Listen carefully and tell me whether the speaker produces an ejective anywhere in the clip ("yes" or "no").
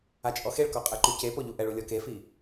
yes